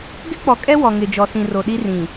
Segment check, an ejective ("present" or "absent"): present